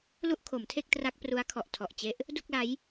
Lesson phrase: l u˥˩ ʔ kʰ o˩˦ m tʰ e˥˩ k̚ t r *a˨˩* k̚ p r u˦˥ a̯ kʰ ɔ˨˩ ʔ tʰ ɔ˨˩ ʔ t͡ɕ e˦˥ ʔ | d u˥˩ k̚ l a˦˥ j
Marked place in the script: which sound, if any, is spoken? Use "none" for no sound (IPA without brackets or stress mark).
a˦˥